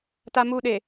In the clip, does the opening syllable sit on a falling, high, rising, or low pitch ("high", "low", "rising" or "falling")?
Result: high